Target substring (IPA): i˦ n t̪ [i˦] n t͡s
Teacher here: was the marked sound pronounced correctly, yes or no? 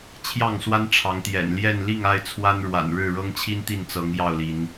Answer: no